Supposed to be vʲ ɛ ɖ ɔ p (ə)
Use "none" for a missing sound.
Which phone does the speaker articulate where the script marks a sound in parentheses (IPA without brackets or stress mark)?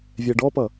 ʌ